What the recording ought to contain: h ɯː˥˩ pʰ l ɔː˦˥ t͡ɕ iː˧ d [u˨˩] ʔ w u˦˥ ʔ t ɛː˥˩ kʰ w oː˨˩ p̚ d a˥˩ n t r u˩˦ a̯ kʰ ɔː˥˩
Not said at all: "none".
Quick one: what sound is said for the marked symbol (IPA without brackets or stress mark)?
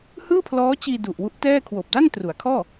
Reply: u˨˩